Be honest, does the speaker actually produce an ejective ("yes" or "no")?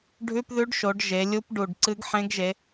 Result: no